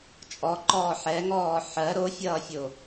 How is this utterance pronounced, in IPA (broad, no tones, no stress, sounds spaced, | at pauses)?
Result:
t͡ʃʼ ɔ ǃ ɔː ħ ɛ ŋ ɔː ħ ɜ ɾ o fʲ ʌː fʲ o